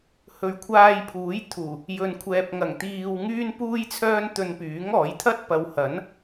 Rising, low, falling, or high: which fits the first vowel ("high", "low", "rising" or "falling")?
low